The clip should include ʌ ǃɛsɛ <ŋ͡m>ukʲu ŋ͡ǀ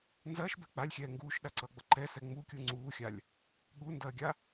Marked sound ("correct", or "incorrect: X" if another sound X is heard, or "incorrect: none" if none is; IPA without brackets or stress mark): correct